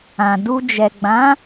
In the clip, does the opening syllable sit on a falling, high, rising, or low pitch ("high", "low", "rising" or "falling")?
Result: low